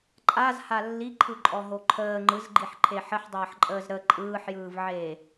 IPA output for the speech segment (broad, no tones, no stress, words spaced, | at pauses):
ǃʼazha lːiǃʰɯǃʼɔɦo ǃʰəː ŋ͡ǃɯzɡ͡ǃiħǃʰe ħəħdˤəːħǃʼəːz ɾə ǃʼɯːħjɯːvʕeː